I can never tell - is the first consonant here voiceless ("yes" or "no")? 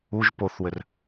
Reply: no